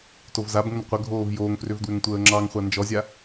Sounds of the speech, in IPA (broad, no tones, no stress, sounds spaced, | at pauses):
t o v z a b ŋ ə n qʷ ə ɡʱ oː v j oː ŋ f r ʏ v d w ʏ ŋ tʷ əː ŋ͡ǁ ɑ ŋ χʷ a n d͡ʒ ɔ zʲ a